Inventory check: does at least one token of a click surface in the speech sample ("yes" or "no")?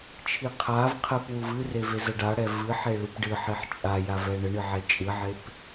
no